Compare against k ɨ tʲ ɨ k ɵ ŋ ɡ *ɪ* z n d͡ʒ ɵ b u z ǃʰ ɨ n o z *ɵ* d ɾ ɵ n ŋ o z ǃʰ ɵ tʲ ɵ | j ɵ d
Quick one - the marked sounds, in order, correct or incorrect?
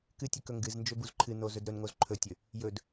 incorrect: ɨ, correct

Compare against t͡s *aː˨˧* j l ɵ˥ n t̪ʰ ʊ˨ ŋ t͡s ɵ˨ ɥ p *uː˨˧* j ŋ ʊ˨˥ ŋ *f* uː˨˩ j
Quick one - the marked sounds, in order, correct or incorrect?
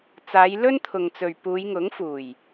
correct, correct, correct

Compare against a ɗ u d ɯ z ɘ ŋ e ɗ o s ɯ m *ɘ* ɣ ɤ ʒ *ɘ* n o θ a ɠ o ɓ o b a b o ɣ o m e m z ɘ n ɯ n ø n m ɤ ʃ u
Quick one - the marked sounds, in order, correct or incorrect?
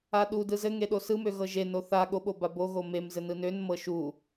incorrect: ø, incorrect: e

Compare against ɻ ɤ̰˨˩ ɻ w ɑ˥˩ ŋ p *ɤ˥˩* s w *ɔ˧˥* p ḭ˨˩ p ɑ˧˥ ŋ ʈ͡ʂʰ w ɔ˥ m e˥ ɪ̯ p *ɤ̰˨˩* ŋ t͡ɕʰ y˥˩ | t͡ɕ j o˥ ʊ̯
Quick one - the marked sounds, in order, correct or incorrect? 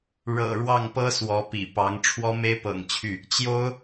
incorrect: ɤ˥, correct, correct

